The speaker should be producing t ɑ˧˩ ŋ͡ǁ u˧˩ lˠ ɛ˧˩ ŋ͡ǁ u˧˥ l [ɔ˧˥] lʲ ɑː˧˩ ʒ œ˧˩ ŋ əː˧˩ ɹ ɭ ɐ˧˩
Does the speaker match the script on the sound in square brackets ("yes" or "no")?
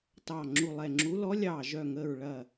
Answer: yes